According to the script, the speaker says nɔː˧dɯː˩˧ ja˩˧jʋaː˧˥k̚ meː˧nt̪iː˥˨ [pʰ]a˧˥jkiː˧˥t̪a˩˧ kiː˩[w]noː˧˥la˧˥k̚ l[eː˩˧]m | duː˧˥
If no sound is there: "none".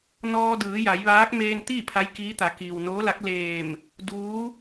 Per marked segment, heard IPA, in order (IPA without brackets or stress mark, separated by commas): pʰ, w, eː˧˩